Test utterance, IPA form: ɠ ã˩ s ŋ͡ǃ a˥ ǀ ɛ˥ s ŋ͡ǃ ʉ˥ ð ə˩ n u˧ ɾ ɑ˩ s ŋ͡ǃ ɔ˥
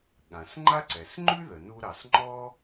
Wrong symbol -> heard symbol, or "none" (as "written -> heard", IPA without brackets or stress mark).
ɛ˥ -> ɛ˩